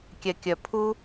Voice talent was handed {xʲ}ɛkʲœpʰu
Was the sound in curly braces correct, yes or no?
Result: no